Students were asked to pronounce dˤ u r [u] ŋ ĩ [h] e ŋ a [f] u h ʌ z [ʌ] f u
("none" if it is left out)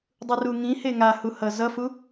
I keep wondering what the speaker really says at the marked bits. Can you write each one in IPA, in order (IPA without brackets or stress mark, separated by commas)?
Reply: u, h, h, ʌ